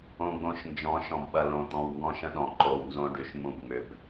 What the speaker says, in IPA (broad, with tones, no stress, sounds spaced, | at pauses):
õ˨ ɡ͡b õ˨ ʃ n d͡ʒ ɔ̃˨˦ ʃ ɔ̃˨ b ɓ ɐ˨ l õ˨ t̪ ɔ̃˨ w ŋ ɡ ɔ̃˦ ʃ ə̃˦ ɗ ɔ̃˨ ǃ o˨ w n z õ˦ ɖ y˨ ʃ m ũ˦˨ b ŋ͡m ʏ˨ b